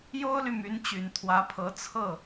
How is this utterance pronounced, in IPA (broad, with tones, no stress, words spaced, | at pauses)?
jo˥ʊ̯ly˨ my˧˥nt͡ɕy˨˩nt̪ʰwä˧˥pʰɤ˧˥ t͡sʰɤ˥˩